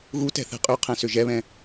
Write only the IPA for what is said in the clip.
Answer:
ɣ u t ɛ̤ θ ɛ̤ qʼ y qʰ ɛ̃ s ʏ ʒ ɛ β ɛ̃

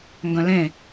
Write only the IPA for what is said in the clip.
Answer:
ŋ ɡ œ̃ l ẽ

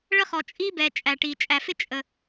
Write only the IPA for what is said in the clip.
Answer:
ɭ ə˥ χ ɔ˩ t͡ʃʼ i˥ b ɛ˩ t͡ʃʼ æ˩ ʈ i˩ t͡ʃʼ æ˩ f ɪ˥ t͡ʃʼ ə˩

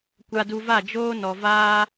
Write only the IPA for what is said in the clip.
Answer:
kʷ a˧ d u˧ v a˦˨ d͡ʒ oː˦ n ɔ˨ v aː˦

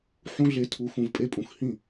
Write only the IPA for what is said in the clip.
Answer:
ħ ũ˦ ɮ e˧ tʰ u˨˦ x ũ˨ v pʼ e˧ pʼ ũ˨ x h ĩ˦˨

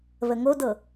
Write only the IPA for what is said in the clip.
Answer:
β ə ŋ o d ɤ

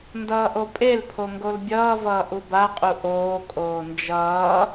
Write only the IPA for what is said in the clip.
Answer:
n d ʌː ʔ o pʼ e l pʰ o ŋ ɡ o l bʲ ʌː v ʌː ʔ u b a qʼ u ʔ oː kʼ oː n d͡ʒ ʌː

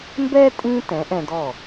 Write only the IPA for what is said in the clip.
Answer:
m b ɛ˥ tʼ ĩ˧ t ɛ̃˩˥ ʔ ɛ̃˧ d ɔ˥˩

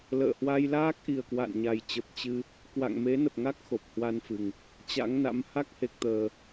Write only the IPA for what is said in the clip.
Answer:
l ə̰ː˧˨ h w a˧ j l aː˦˥ k̚ ʔ i˨˩ ə̯ k w a̰˧˨ n ɲ a˨˩ j t͡ɕ ə˨˩ p̚ t͡ɕ ɨ˧ | k w a̰˧˨ ŋ m e˨˦ n ə˨˩ p̚ ŋ a˦˥ k̚ x o˨˩ p̚ h w a˧ n f ɨ˨˩ ŋ | t͡ɕ a̰˧˥ ŋ n a̰˧˥ m h a˦˥ k̚ h e˨˩ k̚ t̪ əː˨˩

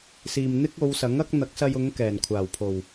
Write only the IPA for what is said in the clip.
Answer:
s iː˨ m n̪ ɪ˥ k̚ o˨˧ w s ɐ˨˥ ŋ ɐ˥ k̚ n̪ ɐ˨˥ k̚ s ɐ˧ j ʊ˨˧ ŋ k ɛː˨˩ n kʷʰ aː˨˩ w pʰ o˨˩ w

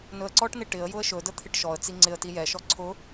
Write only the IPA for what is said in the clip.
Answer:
n ɵ ə̯ ǀ ɔ ʈ n ɪ ʈ ɪ ə̯ j ʊ ə̯ ʃ ɵ d ə t̪ʰ ɪ ʈ ʃ ɔ ə̯ t͡s i ŋ͡ǀ ɪ ə̯ t i j ɛ ʃ ɔ ǀʰ ʊ

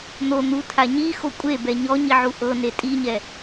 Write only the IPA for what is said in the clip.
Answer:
n̪ o n̪ u tʰ a ɲ i x o kʷʼ e b ɛ ɲ ɔ ɲ i ʕ u ʔ ɤ n e tʼ i ɲ ɛ

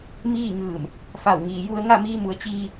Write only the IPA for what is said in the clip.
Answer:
m iː˥˨ ŋ ɯː˧˩ m | f a˧˩ w ŋ iː˩ j u˧ ə̯ ŋ a˥˨ m iː˧ m u˩˧ ə̯ t͡ɕ iː˧

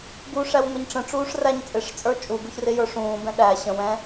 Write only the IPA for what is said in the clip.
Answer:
ɡ u ʂ æ w ŋʷ ɛ ɲ ʈ͡ʂ ə̃ ʈ͡ʂ uː ʂ r æ ɲ t͡sʼ ɪ ʂ t͡sʼ ə˞ t͡ʃʼ u ɡ u ç r ɪ j ə˞ ʂ ũː b ɛ̃ ɗ æ ɕ ə̃ w ɛ̃

